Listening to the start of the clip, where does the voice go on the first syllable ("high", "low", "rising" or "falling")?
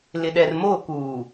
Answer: low